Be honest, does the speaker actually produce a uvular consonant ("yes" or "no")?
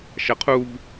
yes